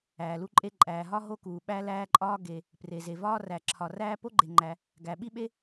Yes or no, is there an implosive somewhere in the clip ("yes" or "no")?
yes